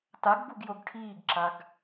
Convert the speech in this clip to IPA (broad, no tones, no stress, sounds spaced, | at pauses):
t a ɡ b u ɡ j o ɡ ʈʰ iː ɡ ǁ a ɡ